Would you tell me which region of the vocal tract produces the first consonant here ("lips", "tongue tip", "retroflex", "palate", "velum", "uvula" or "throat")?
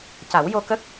palate